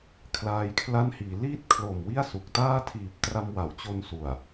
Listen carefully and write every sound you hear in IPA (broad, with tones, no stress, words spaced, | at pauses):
kʰlaː˧jkʰla˥˩nhiː˩˦ liː˥˩t̚kʰlo˨˩m wi˥˩a̯su˨˩k̚taː˥˩ tʰiː˨˩p̚ tra˧mwa˩˦wt͡ɕo˧n su˨˩a̯